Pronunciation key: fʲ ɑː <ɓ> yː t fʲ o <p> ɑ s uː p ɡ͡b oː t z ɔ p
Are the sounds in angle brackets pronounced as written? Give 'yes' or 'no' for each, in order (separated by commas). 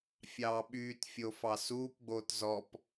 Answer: yes, no